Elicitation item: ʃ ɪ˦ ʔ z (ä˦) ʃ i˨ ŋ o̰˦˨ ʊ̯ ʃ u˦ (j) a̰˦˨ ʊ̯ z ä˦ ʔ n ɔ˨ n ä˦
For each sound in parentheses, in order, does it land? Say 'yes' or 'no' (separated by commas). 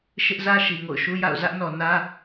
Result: yes, yes